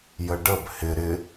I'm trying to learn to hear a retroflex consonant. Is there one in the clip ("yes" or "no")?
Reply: yes